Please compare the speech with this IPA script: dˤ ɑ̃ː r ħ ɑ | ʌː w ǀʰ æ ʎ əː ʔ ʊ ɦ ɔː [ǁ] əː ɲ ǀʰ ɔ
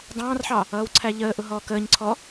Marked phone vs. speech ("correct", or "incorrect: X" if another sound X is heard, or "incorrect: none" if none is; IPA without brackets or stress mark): incorrect: k